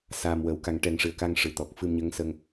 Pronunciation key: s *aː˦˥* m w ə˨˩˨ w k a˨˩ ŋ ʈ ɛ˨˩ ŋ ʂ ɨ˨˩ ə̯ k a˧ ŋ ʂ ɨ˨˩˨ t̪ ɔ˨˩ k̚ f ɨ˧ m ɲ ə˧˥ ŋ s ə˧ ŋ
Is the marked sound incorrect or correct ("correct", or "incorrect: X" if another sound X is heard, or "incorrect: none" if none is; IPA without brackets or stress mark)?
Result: incorrect: aː˨˩